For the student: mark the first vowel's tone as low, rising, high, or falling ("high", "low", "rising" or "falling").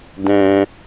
high